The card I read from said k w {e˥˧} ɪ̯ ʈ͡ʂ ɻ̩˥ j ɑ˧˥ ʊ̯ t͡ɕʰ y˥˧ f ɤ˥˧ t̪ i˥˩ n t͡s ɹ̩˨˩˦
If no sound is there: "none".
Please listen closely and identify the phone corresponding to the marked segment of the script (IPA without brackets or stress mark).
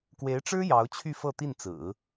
e˧˥